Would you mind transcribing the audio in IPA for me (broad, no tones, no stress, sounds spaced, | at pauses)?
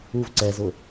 u v ǀ ɛ z ʊ